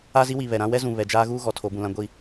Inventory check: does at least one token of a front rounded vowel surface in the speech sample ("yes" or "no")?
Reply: no